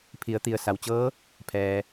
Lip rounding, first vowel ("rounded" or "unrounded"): unrounded